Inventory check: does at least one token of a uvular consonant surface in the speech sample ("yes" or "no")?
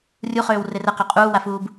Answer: yes